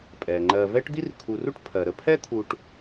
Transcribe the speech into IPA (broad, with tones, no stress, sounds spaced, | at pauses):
pʼ ɛ˩ ŋ͡ǃ ɜ˨ v ɛ˥ ʈ d̪ i˥ r kʰ u˨ r u˥ ʈ pʰ ɜ˩ ɾ ə˦ pʰ ɛ˥ t̪ʰ u˨ ʈ